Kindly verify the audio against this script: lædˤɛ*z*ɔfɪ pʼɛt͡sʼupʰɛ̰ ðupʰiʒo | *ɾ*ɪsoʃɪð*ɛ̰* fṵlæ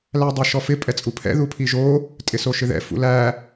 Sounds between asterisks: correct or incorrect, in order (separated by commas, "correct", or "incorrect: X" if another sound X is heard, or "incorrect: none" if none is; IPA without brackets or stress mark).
incorrect: ʃ, incorrect: tʼ, correct